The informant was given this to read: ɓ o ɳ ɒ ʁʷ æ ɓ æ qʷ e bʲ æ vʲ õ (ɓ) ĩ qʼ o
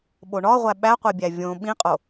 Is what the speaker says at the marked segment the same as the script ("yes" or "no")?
yes